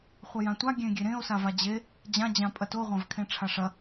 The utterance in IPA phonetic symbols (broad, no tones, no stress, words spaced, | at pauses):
χʷɐjãtʷa ɡʲẽɡʲeɾẽo̯ savad͡ʑe | d͡ʑã d͡ʑãpʼɐto ʁʷãvkʰẽʈ͡ʂʰaʂɐ